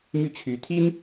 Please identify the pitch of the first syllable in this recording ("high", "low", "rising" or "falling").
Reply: falling